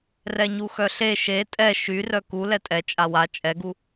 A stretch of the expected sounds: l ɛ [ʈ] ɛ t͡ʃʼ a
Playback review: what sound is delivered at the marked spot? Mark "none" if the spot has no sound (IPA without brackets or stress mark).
tʼ